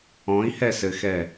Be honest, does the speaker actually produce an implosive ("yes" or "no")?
no